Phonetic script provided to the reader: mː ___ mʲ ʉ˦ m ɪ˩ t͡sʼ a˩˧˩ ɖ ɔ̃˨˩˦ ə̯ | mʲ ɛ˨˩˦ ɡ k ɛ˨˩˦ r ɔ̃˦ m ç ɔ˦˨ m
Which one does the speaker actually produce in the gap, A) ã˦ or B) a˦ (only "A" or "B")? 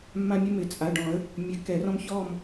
A